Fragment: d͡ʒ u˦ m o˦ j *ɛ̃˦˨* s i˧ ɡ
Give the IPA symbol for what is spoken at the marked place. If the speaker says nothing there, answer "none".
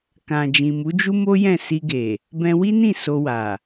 ɛ̃˦˨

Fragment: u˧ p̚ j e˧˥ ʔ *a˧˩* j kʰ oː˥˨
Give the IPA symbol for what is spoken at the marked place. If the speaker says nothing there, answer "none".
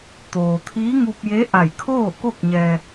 a˧˩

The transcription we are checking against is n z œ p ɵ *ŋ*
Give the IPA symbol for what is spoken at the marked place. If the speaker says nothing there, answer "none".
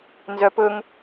ŋ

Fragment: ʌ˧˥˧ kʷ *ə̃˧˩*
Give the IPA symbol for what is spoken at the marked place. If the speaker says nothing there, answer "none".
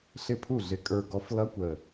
ə˧˩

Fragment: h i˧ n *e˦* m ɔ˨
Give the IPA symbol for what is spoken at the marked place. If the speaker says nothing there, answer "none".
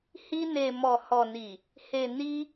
e˨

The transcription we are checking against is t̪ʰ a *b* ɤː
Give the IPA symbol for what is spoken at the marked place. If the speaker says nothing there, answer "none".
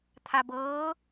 b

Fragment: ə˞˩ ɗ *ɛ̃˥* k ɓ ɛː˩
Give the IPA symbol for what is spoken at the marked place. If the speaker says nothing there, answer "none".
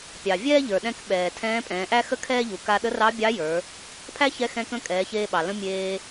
ɛ̃˧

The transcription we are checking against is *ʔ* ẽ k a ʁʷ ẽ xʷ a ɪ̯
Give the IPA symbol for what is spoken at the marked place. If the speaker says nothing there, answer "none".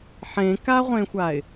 ħ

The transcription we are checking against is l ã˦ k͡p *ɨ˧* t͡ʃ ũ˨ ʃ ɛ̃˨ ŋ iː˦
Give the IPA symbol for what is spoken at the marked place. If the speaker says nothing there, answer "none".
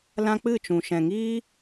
ɨ˦˨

